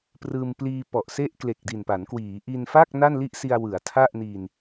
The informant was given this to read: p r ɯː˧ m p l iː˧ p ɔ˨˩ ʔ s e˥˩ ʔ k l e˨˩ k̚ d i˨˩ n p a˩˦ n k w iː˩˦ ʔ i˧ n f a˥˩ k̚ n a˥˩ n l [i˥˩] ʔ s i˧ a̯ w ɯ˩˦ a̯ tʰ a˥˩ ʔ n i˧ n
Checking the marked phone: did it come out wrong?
no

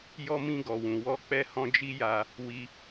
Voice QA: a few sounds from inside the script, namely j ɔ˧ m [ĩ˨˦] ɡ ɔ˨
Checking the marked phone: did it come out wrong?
yes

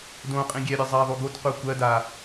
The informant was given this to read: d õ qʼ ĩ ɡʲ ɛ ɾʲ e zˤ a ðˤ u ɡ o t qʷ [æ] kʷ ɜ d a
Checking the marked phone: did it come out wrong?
yes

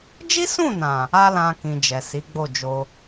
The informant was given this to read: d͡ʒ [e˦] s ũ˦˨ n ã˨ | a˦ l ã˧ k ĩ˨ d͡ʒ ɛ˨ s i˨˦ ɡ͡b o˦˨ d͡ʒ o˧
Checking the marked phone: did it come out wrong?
yes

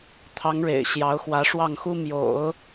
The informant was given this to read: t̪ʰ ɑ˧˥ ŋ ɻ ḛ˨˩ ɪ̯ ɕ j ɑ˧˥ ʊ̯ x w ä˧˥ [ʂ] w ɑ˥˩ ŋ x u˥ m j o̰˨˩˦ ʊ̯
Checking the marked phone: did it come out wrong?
no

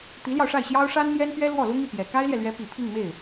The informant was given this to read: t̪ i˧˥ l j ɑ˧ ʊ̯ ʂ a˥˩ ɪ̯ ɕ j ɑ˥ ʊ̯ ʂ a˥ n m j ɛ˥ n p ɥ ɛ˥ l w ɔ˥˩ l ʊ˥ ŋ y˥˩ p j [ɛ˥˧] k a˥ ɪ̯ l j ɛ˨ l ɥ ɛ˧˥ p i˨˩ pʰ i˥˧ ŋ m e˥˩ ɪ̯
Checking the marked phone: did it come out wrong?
yes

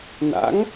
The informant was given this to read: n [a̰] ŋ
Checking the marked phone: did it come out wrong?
no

